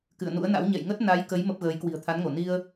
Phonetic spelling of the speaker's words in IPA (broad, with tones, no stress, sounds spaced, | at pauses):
k ɨ̰˧˨ ə̯ n ṵ˧˥ ə̯ n a̰˧˥ w ɲ ɛ̰˧˨ j ŋ ə˦˥ t̚ n a˨˦ j k ə˨˦ j m ə˦˥ p̚ ɣ əː˨˦ j k w i̤˨˩ ə̯ t̪ʰ a˨˦ n ŋ o˧˩ n i˧ ə̯